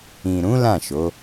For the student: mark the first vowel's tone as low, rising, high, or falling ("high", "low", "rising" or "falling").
low